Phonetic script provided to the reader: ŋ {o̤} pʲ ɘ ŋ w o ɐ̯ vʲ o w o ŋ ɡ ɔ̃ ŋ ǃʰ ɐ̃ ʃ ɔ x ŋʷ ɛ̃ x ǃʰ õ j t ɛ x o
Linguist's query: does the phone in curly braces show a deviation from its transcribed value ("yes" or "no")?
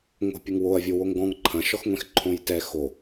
no